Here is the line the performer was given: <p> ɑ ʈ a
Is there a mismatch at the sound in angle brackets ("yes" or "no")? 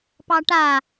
no